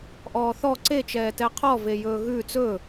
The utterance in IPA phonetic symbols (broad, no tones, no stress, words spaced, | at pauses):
ʔɔːθɔ ǀet͡ʃɛːtɛ qʰɔvejɵː ɣʉːt͡s ɵ